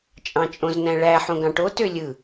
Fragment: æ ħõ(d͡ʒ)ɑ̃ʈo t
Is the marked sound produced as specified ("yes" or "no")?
no